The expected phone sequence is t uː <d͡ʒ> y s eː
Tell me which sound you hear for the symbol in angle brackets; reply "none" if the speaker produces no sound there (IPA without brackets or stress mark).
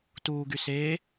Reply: ɡ